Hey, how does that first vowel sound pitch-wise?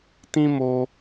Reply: high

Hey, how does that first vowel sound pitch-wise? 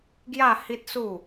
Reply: falling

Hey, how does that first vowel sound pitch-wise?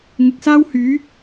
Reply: low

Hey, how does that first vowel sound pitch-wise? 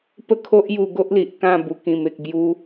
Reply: falling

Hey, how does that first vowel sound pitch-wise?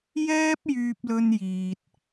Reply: high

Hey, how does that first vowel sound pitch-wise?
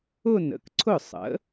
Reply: falling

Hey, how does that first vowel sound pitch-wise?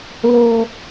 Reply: low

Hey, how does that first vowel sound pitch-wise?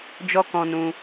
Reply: high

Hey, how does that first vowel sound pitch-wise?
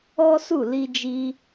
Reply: high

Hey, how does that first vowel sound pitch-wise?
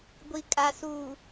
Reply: low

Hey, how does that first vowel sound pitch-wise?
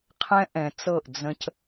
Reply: high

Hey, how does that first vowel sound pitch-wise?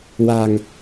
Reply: low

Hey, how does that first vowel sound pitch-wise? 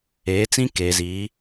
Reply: rising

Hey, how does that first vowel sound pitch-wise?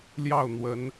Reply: falling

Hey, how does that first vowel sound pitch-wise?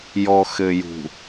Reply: low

